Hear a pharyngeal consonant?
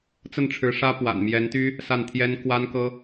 no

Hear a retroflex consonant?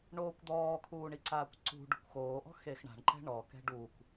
yes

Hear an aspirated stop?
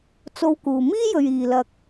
no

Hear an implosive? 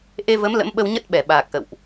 yes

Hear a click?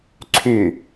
yes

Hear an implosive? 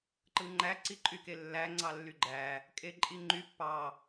no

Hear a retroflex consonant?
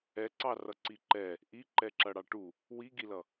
yes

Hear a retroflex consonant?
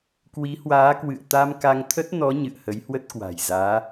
no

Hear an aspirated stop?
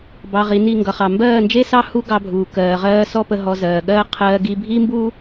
yes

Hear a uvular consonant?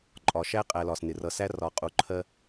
yes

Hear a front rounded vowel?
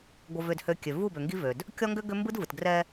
yes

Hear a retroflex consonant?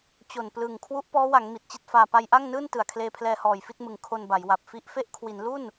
no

